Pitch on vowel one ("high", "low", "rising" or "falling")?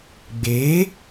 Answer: rising